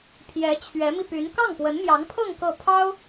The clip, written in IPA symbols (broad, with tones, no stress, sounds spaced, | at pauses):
pʰ j ɛ˧˥ t͡ɕʰ ɥ ɛ˧˥ m i˧ p y˧˥ n k ɑ˥˩ ŋ p w ə˧˥ n m j ɑ˧˥ ŋ pʰ ɤ˥˧ ŋ k ɤ˥˩ pʰ ɑ˥ ʊ̯